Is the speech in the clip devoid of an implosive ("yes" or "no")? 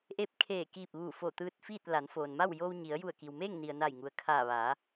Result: yes